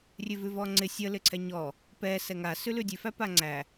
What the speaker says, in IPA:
rʲ ʉ v ʉ v ɔ ŋ͡ǀ ɪ sʲ ə l ɪ ǀʰ ɛ ɲ ɔ | p ɛ s ɛ ŋ a s ʉ l ʉ dʲ ʉ f æ p a ŋ͡ǀ æ

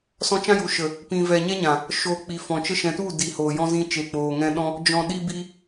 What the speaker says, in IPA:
s ɔ̃˧ t͡ʃ ã˦ j u˨ ʃ ə˨ | p ĩ˨ v ɛ˨ ɲ ɛ˦ ɲ ã˨ | ʃ o˨ k͡p i˨ f ɔ̃˨ t͡ʃ ə˧ ʃ ɛ̃˨ t u˦˨ d i˨ h oː˨ j ɔ̃˦ z ĩ˧ t͡ʃ e˨ k͡p oː˨ ŋ ɛ̃˧ ɗ ɔ̃˦ | d͡ʒ ɔ̃˨ ɗ i˧ b i˧

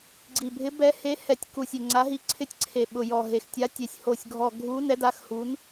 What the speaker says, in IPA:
ɡ͡ǀ i˨˩ bʱ ɪ˨˥ b ɛ˨˥ h e˨˥ h ɛ˨˩ tʲ k u˨˩ sʲ ɪ˨˩ ŋ͡ǀ a˨˥ ɦ i˨˥ ǀʰ ɪ˨˥ tʲ ǀʰ e˨˩ ɓ ʊ˨˩ j ɔ˨˩ ɦ e˨˩ x tʲ a˨˥ tʲ e˨˩ sʲ h o˨˩ sʲ ɡʱ ɔ˨˩ ɡʱ u˨˥ n ɛ˨˥ d a˨˥ x h u˨˥ n

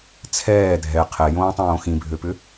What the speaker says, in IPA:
t͡sʰ ɛː dʱ ɛ qʰ ɛ j õː tˤ õː x ĩ bʱ ø p ʏ

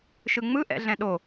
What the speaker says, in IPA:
ʃ ɯ ŋ͡m ɯ ʔ ɛ̰ ɮ ɛ̃ ɗ o

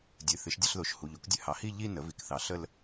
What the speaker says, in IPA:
dʲ ɨ˩˧˩ θ ɨ˩˥ ʃ dʲ ə˥˧ ɬ ð o˩˥ ʃ h u˩˧˩ ʎ o˩˥ k dʲ ɨ˩˥ h ɑ˩˥ h i˥˧ ʎ i˥˧ n ə˩˥ v i˩˧˩ k θ ɑ˩˥ ɬ ə˥˧ l

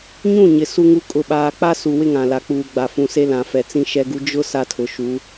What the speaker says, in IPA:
ɲ ũ˦˨ ɲ ɪ˨ s u˦ ŋ u˦ kʼ ʊ˦ ɓ aː˦ k͡p a˦ s u˨ w ɪ˦ ŋ ã˨ l a˨ k͡p uː˨ ɡ͡b a˨ f ũ˨ s e˦ l ã˨ f ɛ˨ t͡s ĩ˦ ʃ ɛ˦ ɡ u˦ d͡ʒ ʊ˦ s a˦ tʰ ʊ˨ ʃ u˨˦

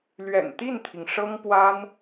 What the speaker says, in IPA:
l ɥ ɛ̰˨˩ n t̪ i˥˩ n t̪ʰ i˩ ŋ ʂ ɤ˥ ŋ p w a˥ n

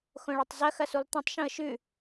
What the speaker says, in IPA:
x õ ɭ a tˤ z ɐ x ɐ s u lˠ t̪ ɐ̃ tˤ ʃ ũ ə̯ ʃ ʉ

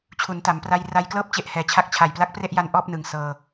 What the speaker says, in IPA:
t͡ɕʰ u˩˦ n t a˩˦ m p r a˧ j r a˧ j k l ɤː˥˩ p̚ t͡ɕ e˦˥ ʔ h ɛː˩˦ t͡ɕʰ a˦˥ k̚ t͡ɕʰ a˨˩ j p l a˦˥ k̚ p r e˥˩ ʔ j a˧ n ʔ ɔː˥˩ p̚ n ɯ˨˩ ŋ s ɤː˧

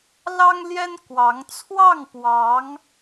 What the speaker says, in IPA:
l ɑ˥ ŋ l j ɛ˥ n k w ɑ˧˥ ŋ t͡sʰ w ɑ˥˩ ŋ p w ɑ˧˥ ŋ

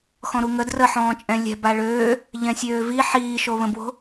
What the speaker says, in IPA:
x ɔ̃ ɾ u ŋ ə d r ə ħ ɔ̃ː t͡ʃʼ ɛ̃ lʲ ɛ̤ b a ɭ øː | ʎ ɛ̃ sʲ øː v i ħ iː ʃ o β ə̃ b w o̤

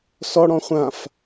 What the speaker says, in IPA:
s ɔ ɽ ɔ̃ χʷ ã f

